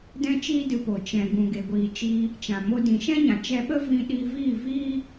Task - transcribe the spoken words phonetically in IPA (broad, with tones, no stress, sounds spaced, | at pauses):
d ɛ̃˦ t͡ʃ iː˦ d ɨ˧ p o˨ t͡ʃ ɛ̃˨ ɡ ũ˨ ɡ e˨ ɡʷ iː˨ t͡ʃ iː˧ | t͡ʃ ã˨ m o˧ d ĩ˨ ʃ ɛ̃˦ ɲ ã˨ t͡ʃ ɛ˧ ɓ ə˦ v ĩ˧ ɗ i˧ v iː˦˨ v iː˦